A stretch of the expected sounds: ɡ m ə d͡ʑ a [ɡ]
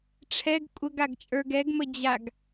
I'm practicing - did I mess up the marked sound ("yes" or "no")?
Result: no